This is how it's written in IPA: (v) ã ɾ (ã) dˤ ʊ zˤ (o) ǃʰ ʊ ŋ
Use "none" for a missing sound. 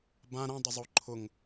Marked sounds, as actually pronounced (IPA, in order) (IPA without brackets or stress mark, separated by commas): b, ã, o